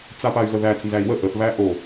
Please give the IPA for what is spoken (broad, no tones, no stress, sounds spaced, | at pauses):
t͡s a p a y̯ ɣ ə ð æ t͡s n z æ i̯ w ə ʔ ə θ β æ ʔ o